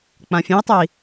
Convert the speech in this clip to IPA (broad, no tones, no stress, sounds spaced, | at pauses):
k͡p ã fʲ ẽ i̯ tˤ ʉ i̯